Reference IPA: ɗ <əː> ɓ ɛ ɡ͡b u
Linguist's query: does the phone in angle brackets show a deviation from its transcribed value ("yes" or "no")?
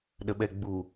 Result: yes